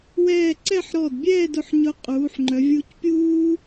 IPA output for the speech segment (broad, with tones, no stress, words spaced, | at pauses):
wɛː˥˧ ǀɛ˥˧ħɾɔ˧˩dbʲɛː˥˧d ʊ˧˩ħɲʊ˧ qʼuː˩˧ħŋ͡ǃœ˩˧ vʲu˧cpʲuː˥